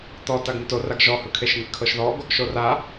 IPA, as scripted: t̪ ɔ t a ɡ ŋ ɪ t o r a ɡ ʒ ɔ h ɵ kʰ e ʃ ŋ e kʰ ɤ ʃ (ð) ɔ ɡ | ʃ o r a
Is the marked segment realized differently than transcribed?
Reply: no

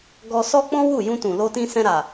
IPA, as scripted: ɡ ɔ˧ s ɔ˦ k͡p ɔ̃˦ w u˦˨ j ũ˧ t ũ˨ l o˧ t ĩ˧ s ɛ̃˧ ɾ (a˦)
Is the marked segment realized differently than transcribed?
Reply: yes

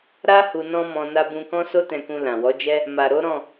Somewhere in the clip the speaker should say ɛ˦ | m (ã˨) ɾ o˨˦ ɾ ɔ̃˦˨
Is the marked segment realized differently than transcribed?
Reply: yes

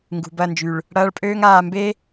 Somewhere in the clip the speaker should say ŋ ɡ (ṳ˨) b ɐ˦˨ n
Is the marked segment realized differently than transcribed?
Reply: no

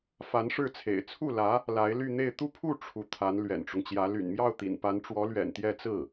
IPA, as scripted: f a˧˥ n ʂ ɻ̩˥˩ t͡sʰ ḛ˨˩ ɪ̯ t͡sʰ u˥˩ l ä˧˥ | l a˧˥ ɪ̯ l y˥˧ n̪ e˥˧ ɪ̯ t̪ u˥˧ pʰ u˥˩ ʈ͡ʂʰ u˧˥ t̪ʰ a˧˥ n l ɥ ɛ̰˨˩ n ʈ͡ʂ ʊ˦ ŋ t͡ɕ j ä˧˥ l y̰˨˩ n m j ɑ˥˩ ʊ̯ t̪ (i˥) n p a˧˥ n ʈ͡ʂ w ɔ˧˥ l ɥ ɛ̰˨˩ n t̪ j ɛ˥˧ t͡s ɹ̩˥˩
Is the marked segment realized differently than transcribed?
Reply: yes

